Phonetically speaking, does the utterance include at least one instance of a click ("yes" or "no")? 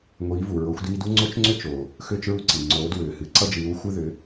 yes